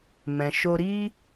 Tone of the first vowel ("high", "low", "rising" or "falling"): low